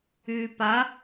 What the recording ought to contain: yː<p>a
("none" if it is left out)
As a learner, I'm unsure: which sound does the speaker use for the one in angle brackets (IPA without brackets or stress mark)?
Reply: p